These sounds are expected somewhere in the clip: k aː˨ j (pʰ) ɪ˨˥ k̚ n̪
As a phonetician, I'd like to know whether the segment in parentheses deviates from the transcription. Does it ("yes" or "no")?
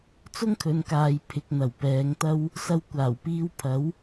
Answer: no